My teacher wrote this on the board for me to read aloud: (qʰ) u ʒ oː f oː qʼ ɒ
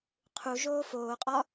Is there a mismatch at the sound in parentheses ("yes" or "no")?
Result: no